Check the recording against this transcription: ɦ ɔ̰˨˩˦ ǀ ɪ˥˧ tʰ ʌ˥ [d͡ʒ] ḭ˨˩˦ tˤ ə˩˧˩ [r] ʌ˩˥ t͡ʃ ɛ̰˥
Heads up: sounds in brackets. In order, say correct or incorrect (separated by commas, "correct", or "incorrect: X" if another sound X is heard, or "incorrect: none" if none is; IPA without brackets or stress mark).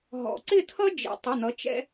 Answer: correct, incorrect: n̪